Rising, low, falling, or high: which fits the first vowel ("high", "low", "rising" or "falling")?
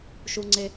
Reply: high